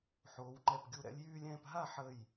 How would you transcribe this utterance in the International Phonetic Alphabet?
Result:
ħ oː˩˧ w ŋ͡ǃ ɛ˧˩ p ɡʲ u˧˩ ɾ ɛ̰˥˧ lʲ j yː˥˧ lʲ ɛ̃ː˥˧ p ɦ a˥˧ ħ ə˧˩ j

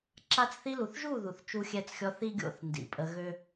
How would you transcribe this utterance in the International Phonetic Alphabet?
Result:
ǁ a˧ t͡s θ i˧ l u˨ θ ʒ u˦˨ ð u˨ θ t͡ʃ u˧ xʲ ɛ˧ t͡s xʲ ɔ˧ θ i˦ ɡʲ o̰˦˨ θ n d ḭ˨ pʼ ə˧ ɣ ø˦

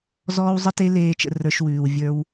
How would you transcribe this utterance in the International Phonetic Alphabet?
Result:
z ɔː˦ w zˤ ə˦ t e˦ l eː˦ t͡ʃ ə̰˧ r ə˞˧ ʃ w ʉː˨ w vʲ ə˞˧ w

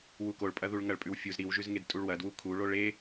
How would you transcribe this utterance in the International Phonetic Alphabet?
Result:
w u k o ɭ pʼ ɐ ð u ɭ ŋ ɐ ɭ pʼ ʉ w fʲ u z ɾ i w ʒ ʉ z ŋ e d tʼ u ɭ w ɐ d w u kʰ u ɭ o ɭ e

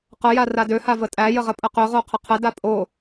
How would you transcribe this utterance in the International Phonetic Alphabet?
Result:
q ə j a r a d ø h a v ə tʼ æ j ə ʁ ə pʼ ə q ø ʁ o qʰ ə qʰ ə d a pʼ o

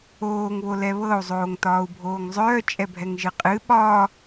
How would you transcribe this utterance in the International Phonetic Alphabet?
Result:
oː ŋ β o l ɛ β ɤ u̯ zˤ oː ŋ t ɒː u̯ bʱ oː ŋ zˤ œː t͡ʃʼ ɛ bʱ ɛ ŋ ʒ ɨ qʼ ɨ ɓ ɒ

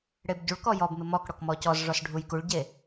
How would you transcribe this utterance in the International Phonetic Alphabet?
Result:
ɽ e b ɟ u ɭ k ɔ j ɔ b m ɪ m ɔ k ɽ ɔ k m ɔ c ɔ z ʐ ɔ s ɖʱ u j k u ɭ ɟ e

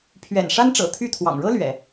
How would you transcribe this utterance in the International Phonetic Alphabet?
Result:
pʰ ɥ ɛ̰˨˩ n ʂ a˥ n ʈ͡ʂ ɤ̰˨˩ t̪ʰ y˥˩ t̪ʰ w ɑ̰˨˩ ŋ ɻ ɤ˥ l ɥ ɛ̰˨˩˦

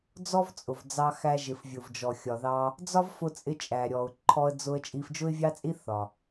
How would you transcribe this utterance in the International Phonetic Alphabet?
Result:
d͡z ɔ˥ v t͡sʼ ʊ˩ v d͡z ɑ˧ x æ˧ ʒ ɪ˩ f vʲ ʊ˩ v d͡ʒ ɔ˩ xʲ ɒ˩ ð ɑ˧ | d͡z ɒ˥ v f ʊ˧ t͡sʼ ɪ˧ t͡ʃʼ æ˩ ɾʲ ɔ˩ ʊ̯ ǃʰ ɔ˧ ə̯ d͡z ʊ˧ ə̯ t͡ʃʼ i˧ f d͡ʒ ʊ˥ ɪ̯ vʲ ɑ˥ t͡sʼ i˥ θ ɒ˩

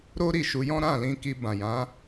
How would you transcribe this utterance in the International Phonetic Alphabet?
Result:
ɾ o˦ ɾ i˦˨ ʃ u˧ j ɔ̃˦ ɾ ã˦˨ l ĩ˧ k i˧ b ã˨ j ã˨˦

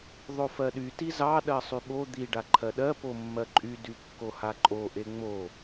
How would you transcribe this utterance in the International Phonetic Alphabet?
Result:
ðˤ o f ɜ ɗ y t i z ɑ ɗ ɜ sˤ y ɓ o d̪ i ɖ a ǃʰ ɜ ɗ ɜ p o mː ɜ ǃʼ y d y kː o h a ǃʼ o ʔ e ŋ͡m o

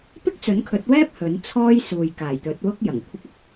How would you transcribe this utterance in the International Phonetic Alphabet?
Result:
p ɪ˥ k̚ t͡s ɵ˨˥ n kʰ ɵ˨˥ t̚ w ɛː˥ p̚ h ɵ˨˥ n t͡sʰ ɔː˥ j s uː˨ j k aː˨˩ j t̪ ɵ˨˥ t̚ w ʊ˥ k̚ j ɐ˨˩ ŋ kʷʰ ɪ˧ k̚ ʊ˨ k̚

